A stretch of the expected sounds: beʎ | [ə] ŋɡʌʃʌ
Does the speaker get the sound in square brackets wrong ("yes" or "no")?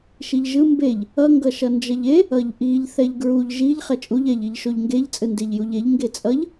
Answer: yes